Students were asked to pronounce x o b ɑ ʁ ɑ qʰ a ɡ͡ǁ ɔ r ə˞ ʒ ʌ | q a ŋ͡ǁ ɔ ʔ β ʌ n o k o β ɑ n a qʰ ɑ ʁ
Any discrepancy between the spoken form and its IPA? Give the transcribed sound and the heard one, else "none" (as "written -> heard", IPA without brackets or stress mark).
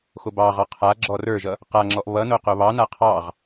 k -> q